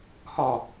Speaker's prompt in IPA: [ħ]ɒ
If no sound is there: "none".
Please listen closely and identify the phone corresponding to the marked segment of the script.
h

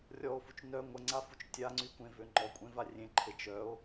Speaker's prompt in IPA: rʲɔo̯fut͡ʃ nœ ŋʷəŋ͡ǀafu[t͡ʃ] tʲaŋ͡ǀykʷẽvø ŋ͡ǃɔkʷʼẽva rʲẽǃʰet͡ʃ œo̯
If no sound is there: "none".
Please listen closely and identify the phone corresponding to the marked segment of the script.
t͡ʃ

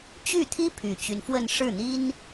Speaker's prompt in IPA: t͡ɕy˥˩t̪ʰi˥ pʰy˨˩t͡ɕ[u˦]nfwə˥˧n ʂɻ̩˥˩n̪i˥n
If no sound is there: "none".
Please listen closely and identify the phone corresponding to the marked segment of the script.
y˦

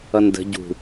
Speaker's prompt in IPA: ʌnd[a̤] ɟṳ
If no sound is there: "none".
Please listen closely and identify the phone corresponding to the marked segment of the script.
ə̤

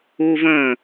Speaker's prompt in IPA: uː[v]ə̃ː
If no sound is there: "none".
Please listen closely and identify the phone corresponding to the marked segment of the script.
v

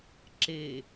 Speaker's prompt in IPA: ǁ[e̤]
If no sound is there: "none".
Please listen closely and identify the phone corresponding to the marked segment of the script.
e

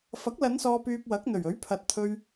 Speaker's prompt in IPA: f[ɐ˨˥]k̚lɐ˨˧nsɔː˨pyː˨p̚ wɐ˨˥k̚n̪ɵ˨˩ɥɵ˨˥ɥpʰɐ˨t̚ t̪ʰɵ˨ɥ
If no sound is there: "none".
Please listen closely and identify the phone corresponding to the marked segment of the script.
ɐ˨˥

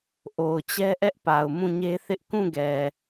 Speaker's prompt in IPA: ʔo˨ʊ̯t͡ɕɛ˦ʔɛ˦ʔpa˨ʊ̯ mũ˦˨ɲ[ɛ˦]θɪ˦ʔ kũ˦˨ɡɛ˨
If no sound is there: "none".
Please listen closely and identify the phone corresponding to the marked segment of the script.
e˦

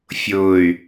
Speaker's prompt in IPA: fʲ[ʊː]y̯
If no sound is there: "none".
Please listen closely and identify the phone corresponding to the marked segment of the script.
ʊː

